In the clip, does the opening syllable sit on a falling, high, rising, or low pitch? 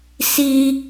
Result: high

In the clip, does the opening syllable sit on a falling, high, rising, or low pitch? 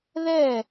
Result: falling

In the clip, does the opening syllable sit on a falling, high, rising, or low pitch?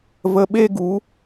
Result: low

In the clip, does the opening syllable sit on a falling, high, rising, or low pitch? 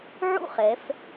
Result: falling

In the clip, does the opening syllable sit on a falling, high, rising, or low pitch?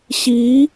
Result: rising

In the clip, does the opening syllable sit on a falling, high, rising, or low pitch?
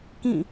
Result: falling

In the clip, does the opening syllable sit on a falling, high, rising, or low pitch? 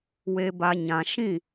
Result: low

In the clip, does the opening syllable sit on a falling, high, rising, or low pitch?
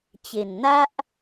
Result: low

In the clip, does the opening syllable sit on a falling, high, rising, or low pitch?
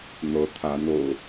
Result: rising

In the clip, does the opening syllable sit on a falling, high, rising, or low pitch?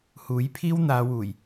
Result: rising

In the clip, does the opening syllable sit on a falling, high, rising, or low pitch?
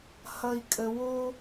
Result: low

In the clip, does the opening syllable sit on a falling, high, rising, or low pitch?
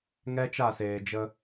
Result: high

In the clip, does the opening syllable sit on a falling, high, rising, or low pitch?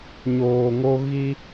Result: low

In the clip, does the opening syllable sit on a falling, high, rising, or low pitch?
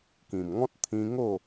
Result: low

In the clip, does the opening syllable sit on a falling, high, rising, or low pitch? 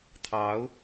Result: rising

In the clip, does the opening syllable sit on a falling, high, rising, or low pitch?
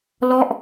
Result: falling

